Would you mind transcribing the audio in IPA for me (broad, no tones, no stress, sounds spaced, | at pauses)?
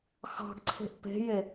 x ɑ̤ ɡ ǀʰ e̤ ʔ p e̤ j e